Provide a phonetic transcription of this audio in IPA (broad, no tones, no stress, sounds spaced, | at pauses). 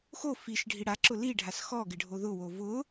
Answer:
x o f i ʃ ɖʱ i ɽ a ǁ ʊ l i ɖʱ a s x ɔ ɡ ɪ ɖʱ o ð ʊ w o v ʊ